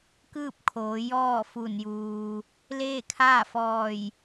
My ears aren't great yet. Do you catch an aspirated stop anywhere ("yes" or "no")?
yes